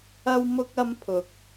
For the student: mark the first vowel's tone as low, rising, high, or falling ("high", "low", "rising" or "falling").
high